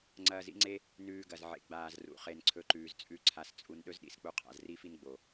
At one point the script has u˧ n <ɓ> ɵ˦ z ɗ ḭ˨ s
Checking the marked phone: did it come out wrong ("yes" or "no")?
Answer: yes